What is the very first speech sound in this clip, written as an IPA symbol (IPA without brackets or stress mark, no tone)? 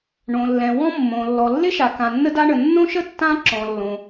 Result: ɳ